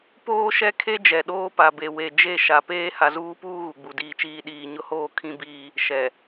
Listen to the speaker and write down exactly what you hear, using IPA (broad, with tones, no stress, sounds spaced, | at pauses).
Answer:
p oː˦ ʃ ɛ˦ kʰ e˦ d͡ʒ ɛ˨ ɗ oː˦ p a˨ b e˨ w e˨ d͡ʒ e˦˨ ʃ a˨ p eː˦ h a˨ z uː˦ p uː˦ ɣ u˨ ɡ͡b u˨ d iː˦ t͡ʃ iː˦ ɗ iː˨ ɲ ʊ˦ h oː˦ kʰ ĩ˦ b iː˦ | ʃ ɛ˨